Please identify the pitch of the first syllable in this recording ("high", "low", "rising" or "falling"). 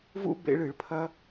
high